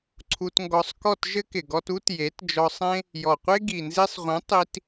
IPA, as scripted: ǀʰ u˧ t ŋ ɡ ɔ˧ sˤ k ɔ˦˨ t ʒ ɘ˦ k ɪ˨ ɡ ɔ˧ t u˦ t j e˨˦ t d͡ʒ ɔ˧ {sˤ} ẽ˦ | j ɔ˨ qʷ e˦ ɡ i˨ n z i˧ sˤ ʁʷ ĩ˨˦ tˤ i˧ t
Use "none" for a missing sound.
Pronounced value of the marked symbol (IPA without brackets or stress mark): sˤ